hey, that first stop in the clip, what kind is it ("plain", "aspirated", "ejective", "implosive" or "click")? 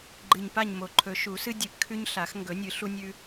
click